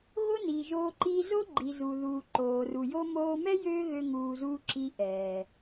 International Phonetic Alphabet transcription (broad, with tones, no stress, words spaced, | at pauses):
ɣo˦niː˨ʒoː˧ ǃi˧ zo˦ɡ͡ǃi˨ zu˨ ðuː˨ǃoː˨ru˨jo˦ moː˧mɛ˦ jøː˦ɣø˧ ŋuː˧zuː˦ ǁi˧ʔɛː˨